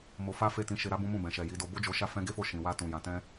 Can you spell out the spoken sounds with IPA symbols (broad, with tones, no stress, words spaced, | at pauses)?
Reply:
mo˧fa˦ fe˦˨tĩ˧ ʃe˧ɾa˦bũ˦mũ˦˨ bɛ̃˨ʃɛ˨ ji˨˦do˧ bo˦d͡ʒo˧ʃa˦ fɛ̃˦ɡe˦fo˦˨ ʃĩ˨wa˧tũ˨ jã˨˦tɛ̃˦